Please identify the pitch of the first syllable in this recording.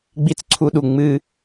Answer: high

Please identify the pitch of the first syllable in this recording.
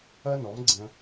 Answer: high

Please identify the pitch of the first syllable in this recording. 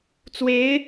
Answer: rising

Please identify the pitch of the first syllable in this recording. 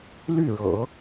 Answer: falling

